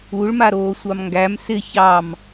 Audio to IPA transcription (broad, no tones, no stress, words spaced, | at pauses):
uɭmaɾoː sʷɑmŋɡæm sɪ çɑm